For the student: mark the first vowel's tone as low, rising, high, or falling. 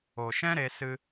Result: low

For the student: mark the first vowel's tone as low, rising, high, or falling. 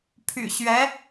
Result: low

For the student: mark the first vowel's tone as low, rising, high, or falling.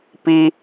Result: high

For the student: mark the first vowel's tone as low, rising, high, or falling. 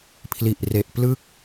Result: low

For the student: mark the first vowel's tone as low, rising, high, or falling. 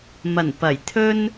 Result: low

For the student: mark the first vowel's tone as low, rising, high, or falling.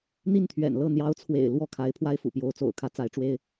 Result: falling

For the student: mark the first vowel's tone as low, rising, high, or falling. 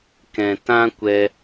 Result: low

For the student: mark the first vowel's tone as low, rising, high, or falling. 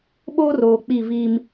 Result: high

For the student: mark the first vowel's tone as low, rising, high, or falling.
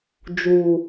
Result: low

